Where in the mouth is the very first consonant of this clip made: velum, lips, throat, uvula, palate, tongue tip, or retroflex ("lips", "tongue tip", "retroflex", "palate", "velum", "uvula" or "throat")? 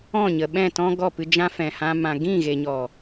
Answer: palate